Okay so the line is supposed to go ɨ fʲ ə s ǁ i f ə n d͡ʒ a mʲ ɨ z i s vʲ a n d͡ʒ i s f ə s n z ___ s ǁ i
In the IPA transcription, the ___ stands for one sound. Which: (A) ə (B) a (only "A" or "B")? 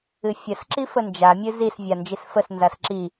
B